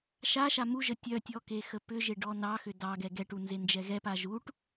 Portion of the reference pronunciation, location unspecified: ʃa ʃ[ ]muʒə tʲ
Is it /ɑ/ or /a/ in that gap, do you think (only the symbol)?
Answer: a